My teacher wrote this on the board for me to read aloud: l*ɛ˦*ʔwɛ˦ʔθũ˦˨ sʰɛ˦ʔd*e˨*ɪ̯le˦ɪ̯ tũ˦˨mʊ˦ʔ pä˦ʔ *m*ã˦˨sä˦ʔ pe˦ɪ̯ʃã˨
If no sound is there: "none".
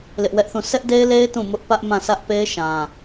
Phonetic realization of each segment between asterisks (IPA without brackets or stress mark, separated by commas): ɪ˦, e˦, m